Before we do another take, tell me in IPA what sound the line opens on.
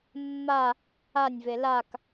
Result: mː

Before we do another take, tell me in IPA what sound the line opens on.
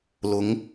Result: l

